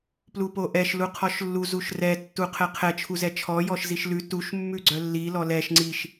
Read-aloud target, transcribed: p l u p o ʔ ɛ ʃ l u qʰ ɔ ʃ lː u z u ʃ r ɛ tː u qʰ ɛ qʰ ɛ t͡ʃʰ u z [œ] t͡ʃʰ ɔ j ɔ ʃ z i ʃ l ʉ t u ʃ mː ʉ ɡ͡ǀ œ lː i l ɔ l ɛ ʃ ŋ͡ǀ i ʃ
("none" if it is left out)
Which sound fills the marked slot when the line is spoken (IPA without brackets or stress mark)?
ɛ